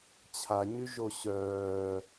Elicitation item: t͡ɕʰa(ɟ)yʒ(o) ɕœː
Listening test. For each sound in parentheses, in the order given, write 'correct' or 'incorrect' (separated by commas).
incorrect, correct